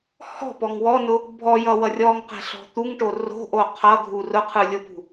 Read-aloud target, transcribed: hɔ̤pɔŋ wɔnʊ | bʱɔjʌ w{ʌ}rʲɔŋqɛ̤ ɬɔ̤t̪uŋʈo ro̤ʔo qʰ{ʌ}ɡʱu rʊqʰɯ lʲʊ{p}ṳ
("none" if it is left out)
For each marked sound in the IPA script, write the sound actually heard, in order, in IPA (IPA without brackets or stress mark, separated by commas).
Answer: ʌ, ʌ, p